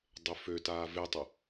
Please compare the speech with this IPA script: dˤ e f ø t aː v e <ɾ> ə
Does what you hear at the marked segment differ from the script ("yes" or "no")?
yes